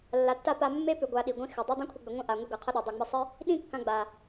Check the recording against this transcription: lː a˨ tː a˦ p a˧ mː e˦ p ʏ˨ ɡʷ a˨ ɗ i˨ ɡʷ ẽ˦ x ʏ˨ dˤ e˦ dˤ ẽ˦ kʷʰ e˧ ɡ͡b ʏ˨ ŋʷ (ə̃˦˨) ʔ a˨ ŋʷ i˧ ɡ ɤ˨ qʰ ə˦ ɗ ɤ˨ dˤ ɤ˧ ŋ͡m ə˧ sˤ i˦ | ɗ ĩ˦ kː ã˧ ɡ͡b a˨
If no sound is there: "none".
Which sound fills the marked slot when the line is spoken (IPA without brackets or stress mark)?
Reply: ə̃˦˨